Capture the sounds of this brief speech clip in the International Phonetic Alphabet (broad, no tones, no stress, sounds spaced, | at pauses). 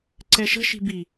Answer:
ǀ ɛ ʃ ə̤ ʃ i̤ b i